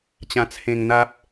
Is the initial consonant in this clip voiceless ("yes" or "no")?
yes